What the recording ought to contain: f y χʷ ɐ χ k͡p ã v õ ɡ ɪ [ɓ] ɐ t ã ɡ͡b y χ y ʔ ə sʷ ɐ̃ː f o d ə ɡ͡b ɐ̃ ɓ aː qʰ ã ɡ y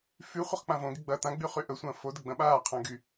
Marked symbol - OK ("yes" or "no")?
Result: no